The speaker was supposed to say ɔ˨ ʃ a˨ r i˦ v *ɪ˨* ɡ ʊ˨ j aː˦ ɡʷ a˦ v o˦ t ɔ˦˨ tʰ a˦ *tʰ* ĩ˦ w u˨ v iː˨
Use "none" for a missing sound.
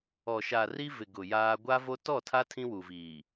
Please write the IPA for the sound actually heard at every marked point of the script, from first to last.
ɪ˨, tʰ

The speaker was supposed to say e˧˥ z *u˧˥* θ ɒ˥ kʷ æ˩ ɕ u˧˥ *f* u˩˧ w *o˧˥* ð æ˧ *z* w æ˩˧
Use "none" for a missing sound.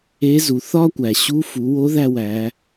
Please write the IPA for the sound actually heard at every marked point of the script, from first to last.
u˩˧, f, o˧˥, none

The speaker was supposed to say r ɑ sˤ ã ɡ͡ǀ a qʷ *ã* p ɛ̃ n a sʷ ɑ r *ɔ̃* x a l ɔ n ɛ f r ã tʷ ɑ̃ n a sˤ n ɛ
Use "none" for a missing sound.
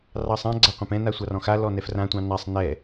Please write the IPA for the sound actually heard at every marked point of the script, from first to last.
ã, ɔ̃

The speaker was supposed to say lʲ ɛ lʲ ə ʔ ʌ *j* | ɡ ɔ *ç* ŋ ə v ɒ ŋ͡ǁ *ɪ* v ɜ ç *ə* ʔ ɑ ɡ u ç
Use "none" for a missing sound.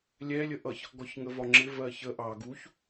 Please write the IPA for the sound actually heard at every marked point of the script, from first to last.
ç, ç, ɪ, ə

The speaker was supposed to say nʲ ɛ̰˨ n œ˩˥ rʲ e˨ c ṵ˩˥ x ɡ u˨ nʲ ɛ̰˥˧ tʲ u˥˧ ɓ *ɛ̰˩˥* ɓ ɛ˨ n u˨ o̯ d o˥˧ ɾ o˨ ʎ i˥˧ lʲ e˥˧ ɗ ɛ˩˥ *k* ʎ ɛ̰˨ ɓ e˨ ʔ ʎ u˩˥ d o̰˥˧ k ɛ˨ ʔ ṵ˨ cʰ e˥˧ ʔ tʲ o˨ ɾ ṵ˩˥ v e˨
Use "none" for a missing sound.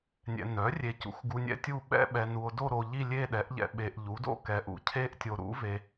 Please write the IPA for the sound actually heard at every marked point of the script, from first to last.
ɛ̰˥˧, ʔ

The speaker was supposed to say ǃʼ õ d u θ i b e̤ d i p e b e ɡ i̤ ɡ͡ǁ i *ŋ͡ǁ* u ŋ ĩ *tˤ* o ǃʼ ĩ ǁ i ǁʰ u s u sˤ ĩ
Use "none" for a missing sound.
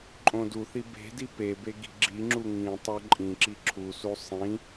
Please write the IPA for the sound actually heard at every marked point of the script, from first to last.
ŋ͡ǁ, tˤ

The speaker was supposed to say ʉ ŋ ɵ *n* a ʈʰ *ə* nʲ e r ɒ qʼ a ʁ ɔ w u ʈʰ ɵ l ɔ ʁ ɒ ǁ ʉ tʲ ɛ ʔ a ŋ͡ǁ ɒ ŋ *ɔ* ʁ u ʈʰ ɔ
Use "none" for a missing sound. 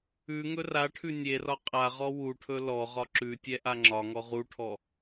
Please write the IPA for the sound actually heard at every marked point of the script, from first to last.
r, ʉ, ɔ

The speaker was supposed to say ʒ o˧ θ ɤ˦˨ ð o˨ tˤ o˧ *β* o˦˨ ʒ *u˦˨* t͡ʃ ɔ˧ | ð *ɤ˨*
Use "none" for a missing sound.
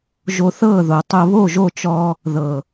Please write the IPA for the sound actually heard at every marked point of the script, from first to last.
β, o˦˨, ɤ˨

